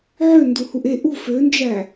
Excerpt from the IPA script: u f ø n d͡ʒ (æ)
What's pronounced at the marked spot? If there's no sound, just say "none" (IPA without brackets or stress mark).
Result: æ